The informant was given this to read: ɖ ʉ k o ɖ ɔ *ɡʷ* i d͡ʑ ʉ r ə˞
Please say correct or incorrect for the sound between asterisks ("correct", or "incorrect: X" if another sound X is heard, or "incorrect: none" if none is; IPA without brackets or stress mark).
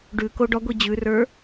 correct